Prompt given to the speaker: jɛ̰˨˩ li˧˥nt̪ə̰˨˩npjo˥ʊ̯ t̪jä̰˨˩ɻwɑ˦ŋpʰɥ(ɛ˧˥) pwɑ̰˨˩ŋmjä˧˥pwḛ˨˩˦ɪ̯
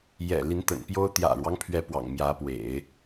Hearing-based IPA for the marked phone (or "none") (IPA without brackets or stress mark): ɛ˧˥